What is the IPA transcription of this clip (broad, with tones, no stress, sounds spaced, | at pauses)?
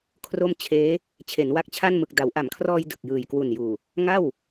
kʰ r o˥˩ m t͡ɕʰ eː˦˥ | t͡ɕʰ e˩˦ n w a˦˥ k̚ t͡ɕʰ a˥˩ n m ɯ˨˩ k̚ d a˩˦ w ʔ a˩˦ m kʰ r ɔː˧ j d ɯ˨˩ k̚ j ɯː˨˩ j k w u˨˩ n j uː˨˩ | ŋ a˥˩ w